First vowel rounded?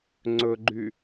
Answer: yes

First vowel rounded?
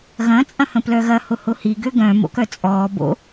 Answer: no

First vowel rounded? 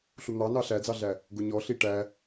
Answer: yes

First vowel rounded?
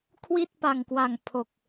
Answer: no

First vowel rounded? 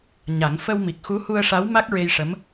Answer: no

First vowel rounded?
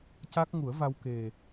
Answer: no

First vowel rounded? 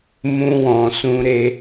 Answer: yes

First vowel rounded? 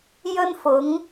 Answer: yes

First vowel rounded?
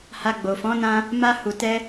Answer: no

